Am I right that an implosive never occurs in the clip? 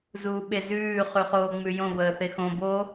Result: no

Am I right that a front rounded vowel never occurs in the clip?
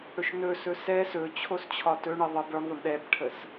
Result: yes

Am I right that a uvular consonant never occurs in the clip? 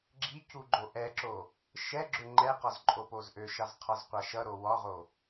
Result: no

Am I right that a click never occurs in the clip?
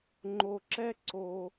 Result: no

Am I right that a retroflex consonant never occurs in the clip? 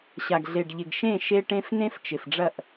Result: no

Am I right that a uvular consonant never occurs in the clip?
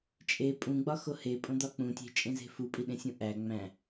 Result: yes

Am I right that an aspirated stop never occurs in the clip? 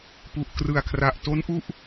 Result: no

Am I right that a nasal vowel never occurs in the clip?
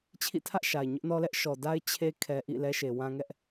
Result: no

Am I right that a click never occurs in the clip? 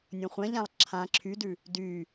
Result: no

